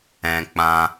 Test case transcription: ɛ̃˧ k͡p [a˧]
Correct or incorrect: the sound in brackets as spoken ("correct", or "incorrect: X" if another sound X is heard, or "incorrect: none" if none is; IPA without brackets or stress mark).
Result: incorrect: ã˧